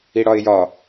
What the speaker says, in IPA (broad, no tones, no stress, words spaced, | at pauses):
iɽɒɪ̯jɒ